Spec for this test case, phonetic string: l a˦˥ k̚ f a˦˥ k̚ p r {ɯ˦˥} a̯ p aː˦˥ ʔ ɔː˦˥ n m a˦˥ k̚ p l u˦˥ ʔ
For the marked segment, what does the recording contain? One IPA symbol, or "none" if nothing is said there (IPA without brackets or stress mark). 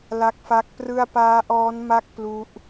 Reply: ɯ˥˩